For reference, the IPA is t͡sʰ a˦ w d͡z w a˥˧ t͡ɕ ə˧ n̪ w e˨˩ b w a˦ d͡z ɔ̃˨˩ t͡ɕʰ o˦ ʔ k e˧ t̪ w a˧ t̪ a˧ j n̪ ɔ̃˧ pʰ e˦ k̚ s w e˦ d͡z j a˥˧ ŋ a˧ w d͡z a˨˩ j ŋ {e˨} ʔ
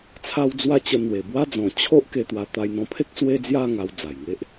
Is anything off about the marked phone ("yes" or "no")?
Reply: yes